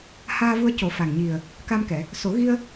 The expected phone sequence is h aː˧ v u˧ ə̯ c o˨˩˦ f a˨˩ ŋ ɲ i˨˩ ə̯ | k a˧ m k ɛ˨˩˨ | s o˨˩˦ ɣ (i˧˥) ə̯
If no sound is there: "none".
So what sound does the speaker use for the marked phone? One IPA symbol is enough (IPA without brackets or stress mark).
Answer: i˧